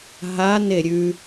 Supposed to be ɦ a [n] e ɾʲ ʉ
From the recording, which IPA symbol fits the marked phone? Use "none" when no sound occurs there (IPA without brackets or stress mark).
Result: n